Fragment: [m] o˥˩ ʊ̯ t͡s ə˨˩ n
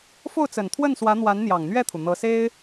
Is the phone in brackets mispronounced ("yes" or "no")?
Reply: yes